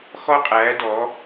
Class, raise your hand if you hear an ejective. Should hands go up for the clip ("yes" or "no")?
yes